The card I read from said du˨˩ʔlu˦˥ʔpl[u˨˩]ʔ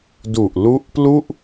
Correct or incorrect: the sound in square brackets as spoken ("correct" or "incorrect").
incorrect